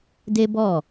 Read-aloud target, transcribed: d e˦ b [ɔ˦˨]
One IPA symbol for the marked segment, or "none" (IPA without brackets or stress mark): ɔ˦˨